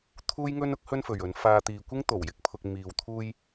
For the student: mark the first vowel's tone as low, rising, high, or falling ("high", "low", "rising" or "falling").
high